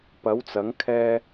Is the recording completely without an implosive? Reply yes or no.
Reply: yes